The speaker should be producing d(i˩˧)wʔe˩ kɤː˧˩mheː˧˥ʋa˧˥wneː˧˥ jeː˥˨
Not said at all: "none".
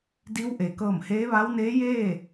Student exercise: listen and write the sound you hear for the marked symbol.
i˧˥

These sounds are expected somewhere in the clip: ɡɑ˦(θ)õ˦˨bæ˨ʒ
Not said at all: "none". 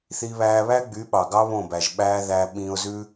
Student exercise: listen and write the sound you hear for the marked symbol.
β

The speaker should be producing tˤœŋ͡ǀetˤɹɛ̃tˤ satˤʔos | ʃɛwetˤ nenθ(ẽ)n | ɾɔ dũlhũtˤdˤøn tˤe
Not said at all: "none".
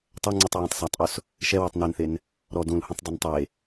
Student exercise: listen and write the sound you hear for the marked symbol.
e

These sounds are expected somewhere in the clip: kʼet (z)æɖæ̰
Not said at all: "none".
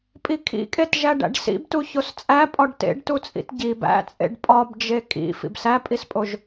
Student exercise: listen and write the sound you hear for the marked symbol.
ʒ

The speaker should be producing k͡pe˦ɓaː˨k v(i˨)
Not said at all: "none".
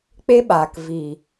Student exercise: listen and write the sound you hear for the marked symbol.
i˨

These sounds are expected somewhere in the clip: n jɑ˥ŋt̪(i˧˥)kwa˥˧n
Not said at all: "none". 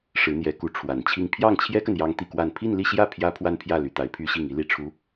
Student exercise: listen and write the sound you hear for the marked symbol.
i˥˧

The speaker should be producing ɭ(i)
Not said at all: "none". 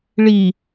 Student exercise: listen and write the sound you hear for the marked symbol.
i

